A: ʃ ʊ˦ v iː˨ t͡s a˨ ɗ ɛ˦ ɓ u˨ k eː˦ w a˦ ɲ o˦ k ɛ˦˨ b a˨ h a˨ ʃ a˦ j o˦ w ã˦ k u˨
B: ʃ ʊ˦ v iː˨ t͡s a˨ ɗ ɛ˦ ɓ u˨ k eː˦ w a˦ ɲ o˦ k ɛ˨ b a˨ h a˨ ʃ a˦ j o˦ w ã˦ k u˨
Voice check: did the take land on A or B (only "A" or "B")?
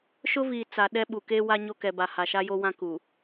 B